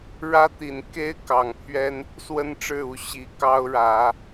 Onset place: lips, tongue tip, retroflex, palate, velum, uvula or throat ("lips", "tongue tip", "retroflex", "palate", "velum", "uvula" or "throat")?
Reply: retroflex